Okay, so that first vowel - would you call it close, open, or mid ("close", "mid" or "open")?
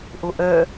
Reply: mid